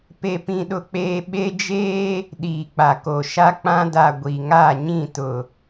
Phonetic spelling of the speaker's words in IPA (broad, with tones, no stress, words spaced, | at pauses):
pe˦pĩ˦ɗʊ˦k͡peː˦ ɓe˦ d͡ʒeː˦ | ɗiː˨k͡pa˨ko˨ʃa˦ k͡pã˦da˨ ɡʷi˨ŋa˦˨ɲĩ˦˨tʊ˨